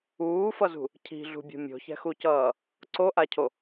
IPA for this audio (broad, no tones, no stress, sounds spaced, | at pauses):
uː f ʌ z ṳ | cʰ i̤ ɮ ṳ bʲ o̤ mʲ o̤ ç ɛ̤ x u c ʌː | ǀ o ʔ a cʰ o